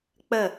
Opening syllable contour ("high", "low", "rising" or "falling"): falling